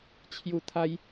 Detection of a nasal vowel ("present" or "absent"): absent